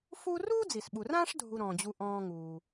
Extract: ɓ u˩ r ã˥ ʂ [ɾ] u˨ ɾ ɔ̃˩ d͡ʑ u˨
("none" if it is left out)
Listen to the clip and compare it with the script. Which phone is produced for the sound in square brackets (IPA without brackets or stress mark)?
dʱ